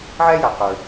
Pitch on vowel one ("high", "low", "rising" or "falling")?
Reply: high